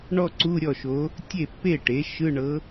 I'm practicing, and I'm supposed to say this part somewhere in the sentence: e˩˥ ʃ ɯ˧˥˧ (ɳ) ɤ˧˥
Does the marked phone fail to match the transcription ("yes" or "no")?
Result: no